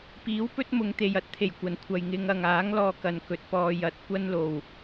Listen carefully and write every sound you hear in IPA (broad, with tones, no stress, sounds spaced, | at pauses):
p iː˨˥ w p ɵ˥ t̚ m ʊ˨˧ ŋ t̪ e˨ j ɐ˥ t̚ t̪ʰ e˨˩ j kʷ ɐ˨˩ n kʷʰ ɐ˨ j ŋ ɪ˧ ŋ ɐ˨ ŋ aː˨˥ ŋ l ɔː˧ k ɐ˨ n k ɵ˨˥ t̚ p ɔː˧ j ɐ˨˥ t̚ kʷ ɐ˥ n l o˨ w